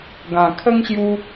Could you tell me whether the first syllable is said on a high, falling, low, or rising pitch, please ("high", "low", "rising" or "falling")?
low